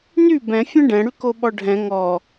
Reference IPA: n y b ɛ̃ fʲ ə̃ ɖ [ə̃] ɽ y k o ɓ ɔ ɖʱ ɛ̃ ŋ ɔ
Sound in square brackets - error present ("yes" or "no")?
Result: yes